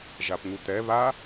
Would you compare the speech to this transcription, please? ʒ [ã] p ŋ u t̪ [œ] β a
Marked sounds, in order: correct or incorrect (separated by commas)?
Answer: incorrect, incorrect